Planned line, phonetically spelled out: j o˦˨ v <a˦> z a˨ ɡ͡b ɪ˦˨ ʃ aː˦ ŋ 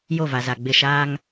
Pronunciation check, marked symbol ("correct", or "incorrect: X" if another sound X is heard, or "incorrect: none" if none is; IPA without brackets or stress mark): incorrect: a˨